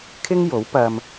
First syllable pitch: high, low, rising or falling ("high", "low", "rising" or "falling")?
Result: high